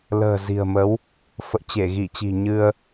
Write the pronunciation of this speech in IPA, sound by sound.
l ə̤ː˨˩ z i̤˨˩ ə̯ m ə˨˦ w | f ə̰ː˧˨ t͡ɕ e˧˩ ɣ i˧˩ t͡ɕ i̤˨˩ ɲ ɨ˧ ə̯

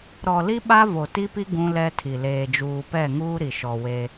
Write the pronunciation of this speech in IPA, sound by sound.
ɾ ɔ˨ l i˦ ɓ a˦ v o˨ t i˦ p i˦ ɡ ũ˦ l ɛ˦ tʰ i˨ l eː˨ d͡ʒ uː˨ p ɛ˦˨ ŋ uː˦ ɾ i˨ ʃ ɔ˨ w e˦

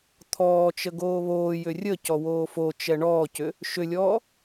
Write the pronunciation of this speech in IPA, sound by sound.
t̪ʰ ɔː t͡ʃ ə ɡ oː β oː j ʏ rʲ ə c ɔ w oː f o t͡ʃ ɛ ɳ ɔː c ʏ | ʃ ʏ lʲ ɔː

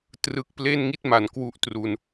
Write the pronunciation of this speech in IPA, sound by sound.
t r ɯ˨˩ k̚ p l e˥˩ n ŋ i˥˩ t̚ m a˩˦ n k w u˦˥ ʔ t r u˧ n

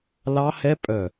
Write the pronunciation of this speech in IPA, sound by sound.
l ɑ˦˥ h ɛ˦˥ pʼ œ˧˩

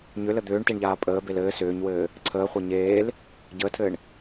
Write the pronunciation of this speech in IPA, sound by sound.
ɲ ʏ l ə d̪ ʏː ɳ t e ɳ ʎ aː pʼ əː b e l ɘː s ʏː ɲ w ɘː | ǀʰ əː χʷ a ɲ eː l | ɟ əː tʰ ɘː ɳ

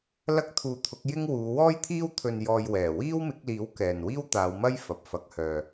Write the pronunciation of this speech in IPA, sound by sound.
l ɐ˥ k̚ t̪ʰ uː˧ t̪ʰ ʊ˨˥ k̚ j ɪ˥ ŋ w uː˨˧ w ɔː˥ j t̪ʰ iː˥ w t̪ʰ ɵ˧ n j ɔː˧ j w ɛː˨˩ w iː˥ w m ɪ˨˥ k̚ l iː˨˥ w k ɛː˨ n w iː˥ w t̪ aː˨˧ w m ɐ˥ j f ɐ˨ p̚ f ɐ˨˥ k̚ h œː˨

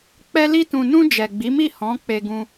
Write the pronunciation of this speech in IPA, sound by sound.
k͡p ɛ˧ l i˧ t ũ˨ n ũ˧ d͡ʒ ɛ˨ ɡ͡b i˨˦ m i˦˨ h ɔ̃˨˦ k͡p e˧ ɡ ũ˧

